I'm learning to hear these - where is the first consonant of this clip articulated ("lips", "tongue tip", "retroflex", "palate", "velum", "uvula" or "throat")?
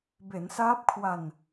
lips